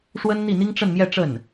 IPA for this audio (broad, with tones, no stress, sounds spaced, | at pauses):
ʂ w ə˥ n n̪ i˥˩ n̪ i˥ ŋ ʈ͡ʂ ə˥˧ n m j ɛ˥˧ ʈ͡ʂ ə˥˩ n